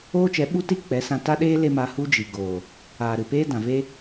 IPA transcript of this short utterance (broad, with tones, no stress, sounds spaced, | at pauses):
oː˦ t͡ʃ ɛ˨˦ ɓ u˦ t iː˦ k͡p ɛ˨˦ s ã˧ t a˦ ɗ eː˦ l e˦ m a˧ h u˦ d͡ʒ i˨ ɡ oː˨ | aː˨ ɾ ɨ˨ p eː˦ d ã˨ v e˦